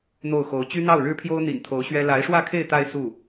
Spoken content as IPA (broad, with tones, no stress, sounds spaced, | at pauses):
n̪ o˥˩ ʊ̯ x o˧˥ ʊ̯ t͡ɕ y˥ n̪ ɑ˥˩ ʊ̯ ɻ ɻ̩˥ pʰ j o˥ ʊ̯ n̪ ḭ˨˩ n t̪ʰ o˧˥ ʊ̯ ɕ ɥ ɛ˥ l a˧˥ ɪ̯ ʂ w ä˥˧ kʰ e˥˧ ɪ̯ t̪ a˥˧ ɪ̯ s u˥˩